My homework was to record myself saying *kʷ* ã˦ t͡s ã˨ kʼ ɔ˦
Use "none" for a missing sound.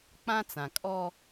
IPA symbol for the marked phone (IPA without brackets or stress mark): k͡p